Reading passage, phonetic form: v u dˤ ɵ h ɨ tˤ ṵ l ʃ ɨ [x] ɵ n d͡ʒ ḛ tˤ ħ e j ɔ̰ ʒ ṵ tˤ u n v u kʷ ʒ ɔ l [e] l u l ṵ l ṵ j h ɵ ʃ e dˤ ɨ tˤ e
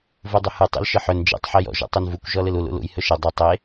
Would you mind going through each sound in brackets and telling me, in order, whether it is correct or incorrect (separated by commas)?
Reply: incorrect, incorrect